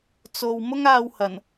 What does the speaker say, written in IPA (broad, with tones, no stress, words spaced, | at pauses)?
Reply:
t͡so˨w mʊ˥ŋaː˧w hɐ˨˩n